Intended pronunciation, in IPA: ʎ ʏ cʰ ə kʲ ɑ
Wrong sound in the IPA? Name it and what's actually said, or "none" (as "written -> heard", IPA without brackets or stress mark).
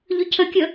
ɑ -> ə